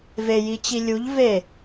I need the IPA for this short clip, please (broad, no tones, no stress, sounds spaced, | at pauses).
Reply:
v e j i t͡ɕ i lʲ u ʎ v e